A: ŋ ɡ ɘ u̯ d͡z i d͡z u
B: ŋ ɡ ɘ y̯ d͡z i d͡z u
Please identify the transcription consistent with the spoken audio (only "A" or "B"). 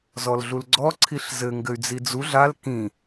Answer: B